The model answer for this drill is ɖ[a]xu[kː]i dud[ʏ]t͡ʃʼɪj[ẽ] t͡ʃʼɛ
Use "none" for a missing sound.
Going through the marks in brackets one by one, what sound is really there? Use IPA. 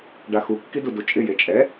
a, kː, u, e

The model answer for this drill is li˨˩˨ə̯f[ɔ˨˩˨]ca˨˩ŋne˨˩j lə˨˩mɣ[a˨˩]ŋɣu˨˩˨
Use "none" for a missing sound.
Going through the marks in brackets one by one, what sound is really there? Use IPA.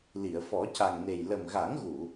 ɔ˨˩˦, a˨˩˦

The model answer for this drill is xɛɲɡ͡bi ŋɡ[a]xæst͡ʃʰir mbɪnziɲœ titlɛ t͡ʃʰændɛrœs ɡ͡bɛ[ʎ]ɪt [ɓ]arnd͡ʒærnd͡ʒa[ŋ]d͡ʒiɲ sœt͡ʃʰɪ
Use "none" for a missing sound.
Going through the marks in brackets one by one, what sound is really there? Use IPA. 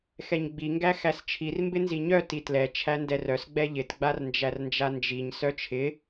æ, ʎ, ɡ͡b, n

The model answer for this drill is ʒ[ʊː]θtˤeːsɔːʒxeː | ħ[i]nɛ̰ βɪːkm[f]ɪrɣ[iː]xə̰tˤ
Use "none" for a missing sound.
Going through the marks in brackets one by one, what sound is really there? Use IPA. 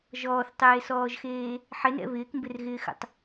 ɔː, ɪ, b, ɪː

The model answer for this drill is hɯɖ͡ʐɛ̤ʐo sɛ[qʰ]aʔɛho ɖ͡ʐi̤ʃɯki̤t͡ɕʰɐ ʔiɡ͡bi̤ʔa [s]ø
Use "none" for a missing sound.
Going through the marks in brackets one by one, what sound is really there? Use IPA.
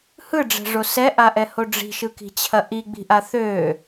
ʔ, θ

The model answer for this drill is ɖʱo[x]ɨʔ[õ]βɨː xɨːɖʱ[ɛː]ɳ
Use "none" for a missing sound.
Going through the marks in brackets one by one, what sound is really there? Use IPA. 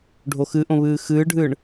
x, õ, ɨː

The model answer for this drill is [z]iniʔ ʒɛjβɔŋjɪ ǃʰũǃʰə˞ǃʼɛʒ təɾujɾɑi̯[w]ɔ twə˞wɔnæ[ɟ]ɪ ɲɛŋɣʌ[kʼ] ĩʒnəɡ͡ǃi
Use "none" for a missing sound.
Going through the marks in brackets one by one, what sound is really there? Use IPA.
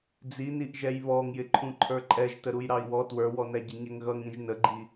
d͡z, w, ɟ, ŋ

